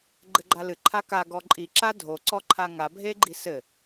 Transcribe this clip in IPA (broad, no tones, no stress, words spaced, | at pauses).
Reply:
ɡ͡ǃɘɡ͡ǃalɨ ǃʰaka ɡɔǃʼi ǁadʱo ǀɔǃʰaŋa bʱeɡ͡ǃisɘ